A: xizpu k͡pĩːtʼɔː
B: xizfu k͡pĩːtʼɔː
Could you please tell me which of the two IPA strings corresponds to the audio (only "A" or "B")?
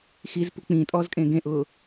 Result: A